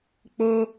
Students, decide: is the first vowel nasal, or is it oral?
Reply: oral